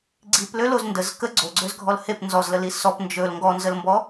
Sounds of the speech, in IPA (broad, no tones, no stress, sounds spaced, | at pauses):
ɡ͡ǀ i p l ø l o z n d ə z k ə ɡ͡ǀ o ɡ͡ǀ ø z ɡʱ ɔ l h e p n z ɔ z l ə l i s ɔ p n d͡ʒ ɵ l ŋ ɡ ɔ n z ə l m b ɔ